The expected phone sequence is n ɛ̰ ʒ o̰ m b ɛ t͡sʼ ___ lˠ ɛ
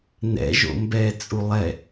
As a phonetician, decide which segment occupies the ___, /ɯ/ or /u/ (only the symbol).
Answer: u